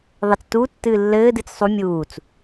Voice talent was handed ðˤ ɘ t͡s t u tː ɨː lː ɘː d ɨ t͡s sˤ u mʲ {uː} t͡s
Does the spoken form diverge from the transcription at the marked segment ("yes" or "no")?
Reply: no